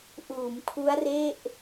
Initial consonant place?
glottal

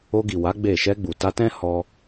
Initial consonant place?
velar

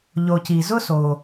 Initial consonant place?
palatal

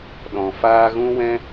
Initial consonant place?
alveolar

